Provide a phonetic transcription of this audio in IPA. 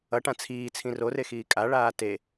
ʌʈã t͡sʰiːt͡sʰĩ rorexiː kʼaɭaː te

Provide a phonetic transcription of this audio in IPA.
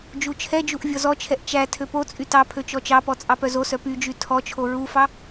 d͡ʒut͡ʃʰɛd͡ʒuʔ vʲɔzɔt͡ʃʰɛʔ t͡ʃæ tʰøpot͡sʼy tɑ pʰøt͡ʃɔt͡ʃɑpɔ t͡sʼɑpœzosœ pyd͡ʒy tʰɔt͡ʃʰo ɹufɑ

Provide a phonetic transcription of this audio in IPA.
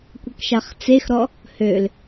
kʷəkʃaχt͡sexɾɔ | høl

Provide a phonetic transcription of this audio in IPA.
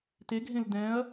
teɡʱẽl dɛ̃ɐ̯

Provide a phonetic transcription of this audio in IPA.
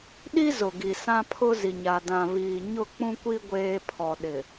ɗi˦ zʊ˨ɡi˨ sã˦pʰʊ˦zi˨ɲa˨ dã˨ βiː˨ ɲʊ˦˨k͡pũ˦kʷi˦ ɡʷeː˦ pʰɔ˨ɗɪ˨

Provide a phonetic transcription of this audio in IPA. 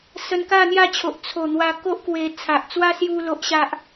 sə˧nka˥˧n̪ja˥˧t͡ɕʰo˨ʔ t͡sʰo˨˩n̪wa˧ ko˦ʔkwe˧ t͡sʰa˨ʔt͡swa˦ sju˦lo˦ʔɕa˦ʔ

